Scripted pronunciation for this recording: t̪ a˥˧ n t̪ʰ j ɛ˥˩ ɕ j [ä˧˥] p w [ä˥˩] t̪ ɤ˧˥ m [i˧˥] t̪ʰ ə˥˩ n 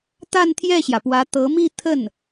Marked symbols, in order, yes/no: no, no, no

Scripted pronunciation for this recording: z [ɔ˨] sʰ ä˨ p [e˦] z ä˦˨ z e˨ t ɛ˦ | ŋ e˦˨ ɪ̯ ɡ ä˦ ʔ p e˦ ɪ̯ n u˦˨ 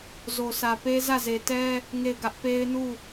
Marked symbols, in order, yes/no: no, yes

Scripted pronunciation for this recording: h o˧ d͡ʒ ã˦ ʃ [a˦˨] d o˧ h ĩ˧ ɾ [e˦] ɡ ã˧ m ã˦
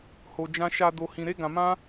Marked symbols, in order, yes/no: no, yes

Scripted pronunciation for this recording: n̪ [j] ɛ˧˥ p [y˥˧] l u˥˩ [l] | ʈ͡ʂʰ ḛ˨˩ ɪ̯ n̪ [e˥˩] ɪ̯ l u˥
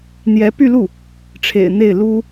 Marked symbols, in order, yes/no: yes, yes, no, yes

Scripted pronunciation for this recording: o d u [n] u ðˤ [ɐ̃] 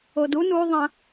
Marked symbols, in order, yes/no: yes, yes

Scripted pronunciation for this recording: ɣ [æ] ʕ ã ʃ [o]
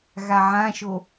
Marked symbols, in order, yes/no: no, yes

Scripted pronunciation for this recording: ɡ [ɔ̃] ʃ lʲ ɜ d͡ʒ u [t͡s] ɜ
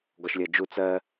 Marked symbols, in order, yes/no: no, yes

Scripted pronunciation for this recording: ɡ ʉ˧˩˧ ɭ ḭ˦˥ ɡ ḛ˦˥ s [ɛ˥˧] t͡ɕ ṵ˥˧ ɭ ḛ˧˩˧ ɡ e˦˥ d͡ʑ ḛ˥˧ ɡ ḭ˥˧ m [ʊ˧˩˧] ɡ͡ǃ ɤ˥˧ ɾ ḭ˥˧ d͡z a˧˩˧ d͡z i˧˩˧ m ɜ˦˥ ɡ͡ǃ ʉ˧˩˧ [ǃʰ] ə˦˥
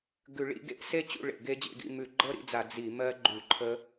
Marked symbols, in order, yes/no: no, no, yes

